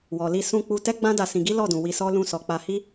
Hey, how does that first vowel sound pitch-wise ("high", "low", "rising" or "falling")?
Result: low